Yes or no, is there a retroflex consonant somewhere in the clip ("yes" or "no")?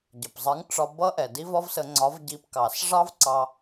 yes